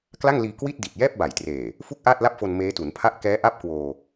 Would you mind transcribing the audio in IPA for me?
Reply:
k l a˥˩ ŋ l iː˧ k w i˥˩ t̚ d i˨˩ t̚ j ɛː˥˩ p̚ b a˨˩ j t r eː˨˩ | f u˥˩ k̚ ʔ aː˥˩ t̚ l a˥˩ p̚ f o˧ n m eː˦˥ t u˩˦ n pʰ a˥˩ ʔ k ɛː˦˥ ʔ a˦˥ p̚ k w oː˧

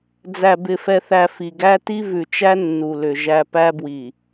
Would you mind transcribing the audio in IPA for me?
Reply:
d͡z æ˨ b ɪ˨ f ɛ˨ θ æ˨ f i˨ ɡ æ˦ t i˦ v ʉ˨ t͡ʃ æ˦ nː u˨ l ʏ˨ ʒ æ˦ p æ˦ b w i˨

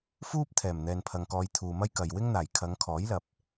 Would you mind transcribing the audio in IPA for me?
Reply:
f uː˥ p̚ t̪ʰ ɛː˨˩ m n̪ ɛː˨ n pʰ ɐ˨ ŋ k ɔː˨˧ j t̪ʰ uː˨ m ɐ˥ j k ɐ˨ j w ɪ˥ ŋ n̪ aː˨˩ j kʰ ɐ˨˧ ŋ kʰ ɔː˨˥ j l ɐ˨ p̚

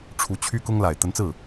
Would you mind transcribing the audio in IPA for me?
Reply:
ʈ͡ʂʰ u˧˥ t͡ɕʰ y˥ k ʊ˥ ŋ l a˨˩ ɪ̯ t̪ ə˧˥ n t͡s ɹ̩˥˩

